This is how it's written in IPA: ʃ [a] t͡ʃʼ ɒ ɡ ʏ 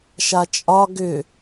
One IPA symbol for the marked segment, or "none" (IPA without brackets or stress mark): a